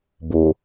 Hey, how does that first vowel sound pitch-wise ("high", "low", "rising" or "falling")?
low